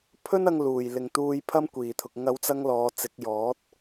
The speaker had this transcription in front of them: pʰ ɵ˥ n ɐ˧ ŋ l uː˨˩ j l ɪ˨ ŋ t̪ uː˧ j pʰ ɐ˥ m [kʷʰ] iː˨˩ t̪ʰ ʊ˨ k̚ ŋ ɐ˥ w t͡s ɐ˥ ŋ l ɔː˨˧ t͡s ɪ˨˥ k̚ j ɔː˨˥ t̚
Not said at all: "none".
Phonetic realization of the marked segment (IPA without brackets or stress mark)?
kʷ